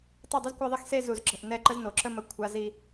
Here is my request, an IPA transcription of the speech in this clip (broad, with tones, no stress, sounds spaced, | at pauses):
tˤ i˦˨ dˤ i˦ z kʷ a˦ ðˤ e˦ x s e˦ z u˨ z ǁ ə̤˨ ʔ n ɛ˦˨ ǃ ə˦ z n o˨ ǁ ə˦ m ə˦ kʷʰ a˦ z i˦